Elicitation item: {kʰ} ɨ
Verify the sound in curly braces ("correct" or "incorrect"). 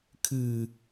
correct